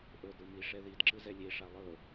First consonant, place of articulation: glottal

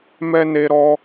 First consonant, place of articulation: labial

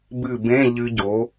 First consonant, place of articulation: labial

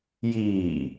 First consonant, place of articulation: palatal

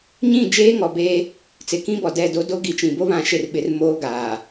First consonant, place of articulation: palatal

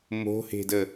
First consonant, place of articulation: labial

